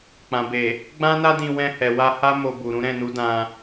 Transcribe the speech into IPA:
k͡pã˨be˨ | ɡ͡bã˦na˦dĩ˧ wɛ̃˧hɛ˨wa˧ ha˦ mo˧bu˨ɾũ˨˦ ɾɛ̃˦˨nu˨˦ dã˧

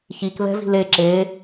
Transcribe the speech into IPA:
çik βɛ̤vi̤le ǁe

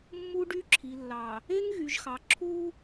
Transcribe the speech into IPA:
mːu˦ɖy˦ ǁʰi˨lːɑ˨ | e˦ŋɣy˨ʒxɑ˨ ǁʰu˦

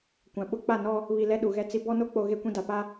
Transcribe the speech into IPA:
kʷã˨ɓʊ˦ k͡pa˦˨nɔ˦ | βi˨ lɛ˦ɗu˨ɣɛ˦ t͡si˦ bɔ˦no˦k͡po˨ ɣe˦kʷĩ˦da˨ pa˦

